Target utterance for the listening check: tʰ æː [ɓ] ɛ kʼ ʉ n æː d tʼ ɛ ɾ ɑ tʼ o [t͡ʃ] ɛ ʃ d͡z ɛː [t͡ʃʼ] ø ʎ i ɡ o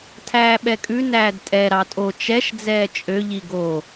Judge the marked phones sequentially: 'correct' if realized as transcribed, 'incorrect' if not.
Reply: correct, correct, correct

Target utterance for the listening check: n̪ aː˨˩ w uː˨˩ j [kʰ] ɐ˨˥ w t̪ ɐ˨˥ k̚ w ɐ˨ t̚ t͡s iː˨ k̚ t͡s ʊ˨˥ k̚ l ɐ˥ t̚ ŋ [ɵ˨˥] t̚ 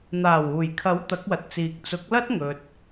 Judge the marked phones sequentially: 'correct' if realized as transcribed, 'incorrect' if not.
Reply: correct, incorrect: ɵ˧

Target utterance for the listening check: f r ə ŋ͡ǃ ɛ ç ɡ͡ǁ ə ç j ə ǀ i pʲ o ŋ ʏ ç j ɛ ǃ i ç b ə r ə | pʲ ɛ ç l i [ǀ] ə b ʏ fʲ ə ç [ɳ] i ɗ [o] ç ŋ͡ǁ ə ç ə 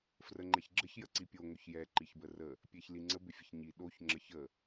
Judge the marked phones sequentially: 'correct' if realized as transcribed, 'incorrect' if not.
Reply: incorrect: ŋ͡ǀ, incorrect: ɲ, correct

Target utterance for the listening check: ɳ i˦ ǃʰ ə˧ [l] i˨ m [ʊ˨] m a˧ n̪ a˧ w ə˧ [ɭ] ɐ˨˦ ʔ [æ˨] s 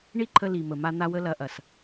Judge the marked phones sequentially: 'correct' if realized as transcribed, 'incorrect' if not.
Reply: correct, incorrect: ə˨, incorrect: l, incorrect: ɐ˨

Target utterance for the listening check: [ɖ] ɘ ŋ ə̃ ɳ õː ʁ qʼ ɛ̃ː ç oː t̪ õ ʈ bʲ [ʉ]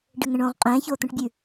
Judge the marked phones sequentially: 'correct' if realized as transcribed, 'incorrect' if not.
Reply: correct, correct

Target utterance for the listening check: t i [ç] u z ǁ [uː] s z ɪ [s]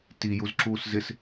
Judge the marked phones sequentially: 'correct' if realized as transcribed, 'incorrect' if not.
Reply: incorrect: j, correct, correct

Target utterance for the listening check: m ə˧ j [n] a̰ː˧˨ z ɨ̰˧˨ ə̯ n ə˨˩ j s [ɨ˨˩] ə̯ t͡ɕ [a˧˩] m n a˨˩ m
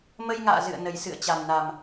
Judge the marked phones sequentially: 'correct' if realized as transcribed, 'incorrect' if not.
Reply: incorrect: ŋ, incorrect: ɨ̰˧˨, incorrect: a˨˩

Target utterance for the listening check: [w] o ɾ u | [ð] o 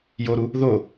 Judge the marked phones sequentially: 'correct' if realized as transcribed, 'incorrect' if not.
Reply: incorrect: j, correct

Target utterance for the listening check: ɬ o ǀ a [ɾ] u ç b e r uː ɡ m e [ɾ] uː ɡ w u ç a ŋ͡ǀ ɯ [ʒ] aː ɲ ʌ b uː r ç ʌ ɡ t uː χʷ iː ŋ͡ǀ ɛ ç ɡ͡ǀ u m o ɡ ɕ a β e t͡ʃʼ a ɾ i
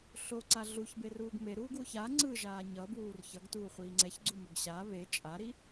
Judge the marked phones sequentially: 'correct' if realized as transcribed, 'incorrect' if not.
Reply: incorrect: ɮ, correct, correct

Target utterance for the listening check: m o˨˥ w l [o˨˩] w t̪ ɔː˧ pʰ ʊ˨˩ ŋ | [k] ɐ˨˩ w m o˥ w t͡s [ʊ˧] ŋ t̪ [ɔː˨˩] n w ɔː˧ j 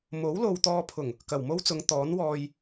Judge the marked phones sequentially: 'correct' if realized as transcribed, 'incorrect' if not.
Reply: incorrect: o˨, correct, incorrect: ʊ˨˧, incorrect: ɔː˨˥

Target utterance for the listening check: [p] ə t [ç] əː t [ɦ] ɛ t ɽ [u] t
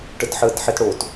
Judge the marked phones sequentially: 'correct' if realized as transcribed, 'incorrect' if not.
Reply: incorrect: ʈ, incorrect: ħ, incorrect: ħ, incorrect: o

